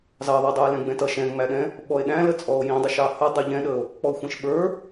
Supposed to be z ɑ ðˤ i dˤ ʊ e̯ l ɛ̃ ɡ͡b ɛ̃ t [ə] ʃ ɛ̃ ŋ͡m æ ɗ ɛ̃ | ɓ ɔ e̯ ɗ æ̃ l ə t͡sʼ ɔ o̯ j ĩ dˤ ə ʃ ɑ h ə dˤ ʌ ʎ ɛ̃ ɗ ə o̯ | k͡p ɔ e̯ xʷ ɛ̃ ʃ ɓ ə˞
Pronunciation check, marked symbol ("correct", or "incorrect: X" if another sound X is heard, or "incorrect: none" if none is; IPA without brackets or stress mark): incorrect: ʌ